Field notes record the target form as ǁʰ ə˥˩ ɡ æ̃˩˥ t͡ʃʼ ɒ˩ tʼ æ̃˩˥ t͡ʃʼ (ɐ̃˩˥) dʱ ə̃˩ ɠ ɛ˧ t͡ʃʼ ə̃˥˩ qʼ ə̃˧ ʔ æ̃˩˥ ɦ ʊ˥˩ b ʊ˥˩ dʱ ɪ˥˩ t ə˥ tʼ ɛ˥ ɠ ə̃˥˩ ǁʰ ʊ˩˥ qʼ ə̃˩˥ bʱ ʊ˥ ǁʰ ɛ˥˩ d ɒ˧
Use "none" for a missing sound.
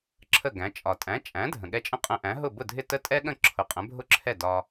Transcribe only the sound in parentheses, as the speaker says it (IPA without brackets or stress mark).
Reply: æ̃˩˥